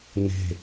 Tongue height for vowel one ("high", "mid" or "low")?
mid